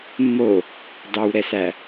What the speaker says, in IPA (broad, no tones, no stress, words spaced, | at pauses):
mːo | dɑwɾɛsæ